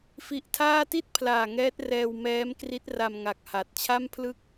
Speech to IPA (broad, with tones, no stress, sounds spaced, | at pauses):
f i˦˥ ʔ tʰ aː˥˩ t i˥˩ t̚ pʰ l aː˨˩ ŋ ɛː˦˥ t̚ r ɛː˧ w m ɛː˦˥ m k r i˦˥ t̚ r a˧ m ŋ a˨˩ k̚ h a˨˩ t̚ t͡ɕʰ a˥˩ m pʰ l ɯ˥˩ k̚